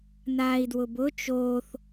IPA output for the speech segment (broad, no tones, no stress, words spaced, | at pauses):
naːi̯dwʊbʊ t͡ʃoːθ